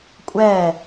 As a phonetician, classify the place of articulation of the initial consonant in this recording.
velar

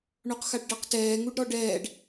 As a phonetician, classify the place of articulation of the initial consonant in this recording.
retroflex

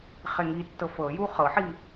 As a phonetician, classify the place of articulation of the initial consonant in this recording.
uvular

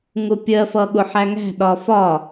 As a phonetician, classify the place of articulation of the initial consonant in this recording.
velar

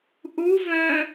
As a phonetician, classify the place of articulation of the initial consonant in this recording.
glottal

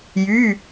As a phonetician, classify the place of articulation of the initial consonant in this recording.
palatal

